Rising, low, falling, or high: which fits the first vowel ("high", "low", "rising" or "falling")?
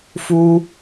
high